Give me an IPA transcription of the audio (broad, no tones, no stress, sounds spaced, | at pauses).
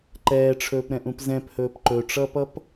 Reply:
ǃ ɛː ʈ͡ʂʰ ɵː p ɾ ɛ̃ ʔ ũ p z ɛ̃ p h ɵː p ǃ ɵ ʈ͡ʂ ʌː p ʌ p